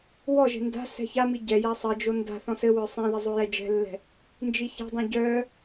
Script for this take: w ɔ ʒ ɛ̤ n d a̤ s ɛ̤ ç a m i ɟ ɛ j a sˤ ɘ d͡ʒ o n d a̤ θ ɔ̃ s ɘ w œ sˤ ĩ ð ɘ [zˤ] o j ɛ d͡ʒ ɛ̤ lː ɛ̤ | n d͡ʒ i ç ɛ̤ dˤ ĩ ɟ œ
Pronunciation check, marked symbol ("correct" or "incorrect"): correct